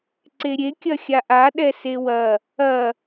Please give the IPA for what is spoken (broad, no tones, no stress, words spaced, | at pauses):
ǀeɾʲe kʲɐxʲaʔa ɗɛsewɐ | ɐ